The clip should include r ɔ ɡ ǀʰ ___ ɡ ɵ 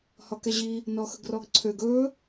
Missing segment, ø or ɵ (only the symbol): ø